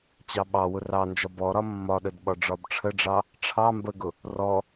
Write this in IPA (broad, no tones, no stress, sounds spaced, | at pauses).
t͡ɕ ɑ ɓ ɑ w ʊ r ɑ n d͡ʒ ɒ b ɔ ɾ ɒ mː ɒ ɗ ə d ɓ ɒ ɖ͡ʐ ɒ b ʈ͡ʂʰ ə ɖ͡ʐ ɑ | ʈ͡ʂʰ ɑ m b ə ɡ ʊ | r ɔ